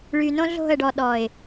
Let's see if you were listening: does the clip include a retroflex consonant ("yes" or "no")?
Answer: yes